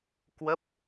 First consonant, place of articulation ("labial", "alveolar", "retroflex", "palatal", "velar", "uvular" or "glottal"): velar